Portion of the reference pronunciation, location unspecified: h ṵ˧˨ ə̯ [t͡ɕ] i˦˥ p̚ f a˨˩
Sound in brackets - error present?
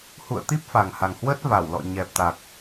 yes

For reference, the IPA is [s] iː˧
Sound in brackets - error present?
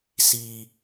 no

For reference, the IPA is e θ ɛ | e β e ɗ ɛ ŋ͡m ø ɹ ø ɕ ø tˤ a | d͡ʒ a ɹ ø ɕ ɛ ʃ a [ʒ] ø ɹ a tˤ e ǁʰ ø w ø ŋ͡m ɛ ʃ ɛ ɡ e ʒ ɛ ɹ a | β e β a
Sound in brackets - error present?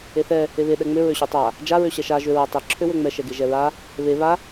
no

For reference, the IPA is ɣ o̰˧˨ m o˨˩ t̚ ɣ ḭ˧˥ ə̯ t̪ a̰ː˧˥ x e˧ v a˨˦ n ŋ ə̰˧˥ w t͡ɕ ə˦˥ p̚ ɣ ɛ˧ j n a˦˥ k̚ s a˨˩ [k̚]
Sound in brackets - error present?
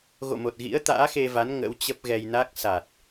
yes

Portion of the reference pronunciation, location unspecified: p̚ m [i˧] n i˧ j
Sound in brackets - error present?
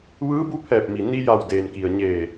yes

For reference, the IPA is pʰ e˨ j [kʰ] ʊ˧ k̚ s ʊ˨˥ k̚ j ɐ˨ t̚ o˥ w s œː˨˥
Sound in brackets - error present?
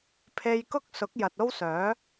yes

